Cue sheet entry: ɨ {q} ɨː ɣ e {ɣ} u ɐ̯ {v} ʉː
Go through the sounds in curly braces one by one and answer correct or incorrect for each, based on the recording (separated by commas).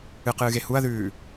correct, incorrect, incorrect